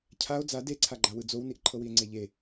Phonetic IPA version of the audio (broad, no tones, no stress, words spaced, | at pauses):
cʰao̯ d͡za deǀʰaɡ͡ǃawɯ d͡zowniʔ ǃʰɤwie̯ŋ͡ǀeʎe